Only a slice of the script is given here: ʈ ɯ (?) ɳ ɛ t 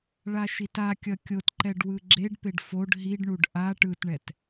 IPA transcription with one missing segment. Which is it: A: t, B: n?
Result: A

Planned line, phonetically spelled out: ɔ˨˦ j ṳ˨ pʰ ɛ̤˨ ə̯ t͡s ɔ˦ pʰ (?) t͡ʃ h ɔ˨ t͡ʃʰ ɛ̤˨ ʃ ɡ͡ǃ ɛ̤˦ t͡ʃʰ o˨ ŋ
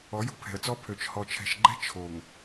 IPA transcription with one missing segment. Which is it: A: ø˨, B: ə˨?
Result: A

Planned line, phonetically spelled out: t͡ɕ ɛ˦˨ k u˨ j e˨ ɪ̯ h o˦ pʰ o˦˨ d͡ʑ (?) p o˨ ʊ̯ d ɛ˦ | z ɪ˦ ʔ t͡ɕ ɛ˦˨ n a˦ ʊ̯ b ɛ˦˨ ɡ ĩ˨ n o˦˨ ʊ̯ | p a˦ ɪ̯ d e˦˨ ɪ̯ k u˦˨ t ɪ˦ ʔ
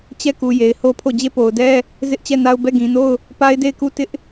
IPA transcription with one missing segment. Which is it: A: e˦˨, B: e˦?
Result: A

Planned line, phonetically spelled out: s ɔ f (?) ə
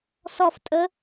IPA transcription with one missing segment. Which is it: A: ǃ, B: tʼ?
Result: B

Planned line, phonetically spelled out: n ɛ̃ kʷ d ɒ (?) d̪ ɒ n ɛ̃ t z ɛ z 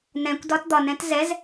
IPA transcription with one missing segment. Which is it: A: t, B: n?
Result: A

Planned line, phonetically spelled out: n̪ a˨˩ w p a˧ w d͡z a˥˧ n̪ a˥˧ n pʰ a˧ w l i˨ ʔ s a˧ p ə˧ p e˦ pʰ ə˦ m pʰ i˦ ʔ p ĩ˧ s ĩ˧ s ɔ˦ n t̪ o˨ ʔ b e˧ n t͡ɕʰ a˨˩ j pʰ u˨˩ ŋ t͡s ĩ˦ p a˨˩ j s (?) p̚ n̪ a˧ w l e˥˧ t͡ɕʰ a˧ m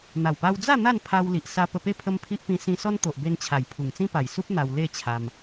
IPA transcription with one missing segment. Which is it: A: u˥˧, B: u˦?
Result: B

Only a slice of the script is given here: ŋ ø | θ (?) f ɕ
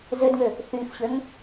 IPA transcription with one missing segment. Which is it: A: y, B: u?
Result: A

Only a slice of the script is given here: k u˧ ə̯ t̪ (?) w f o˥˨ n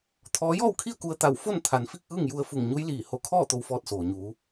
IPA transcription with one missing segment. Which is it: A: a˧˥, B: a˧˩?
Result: B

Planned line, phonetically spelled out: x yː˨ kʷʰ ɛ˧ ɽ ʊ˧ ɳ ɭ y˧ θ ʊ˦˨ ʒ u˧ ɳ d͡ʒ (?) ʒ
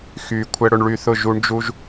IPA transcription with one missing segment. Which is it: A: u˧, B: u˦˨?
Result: A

